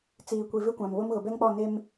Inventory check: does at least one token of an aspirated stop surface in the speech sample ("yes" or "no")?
no